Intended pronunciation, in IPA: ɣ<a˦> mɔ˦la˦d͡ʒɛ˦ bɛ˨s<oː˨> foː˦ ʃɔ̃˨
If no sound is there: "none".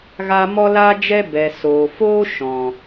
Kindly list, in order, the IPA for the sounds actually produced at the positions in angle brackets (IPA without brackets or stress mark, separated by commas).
a˦, oː˨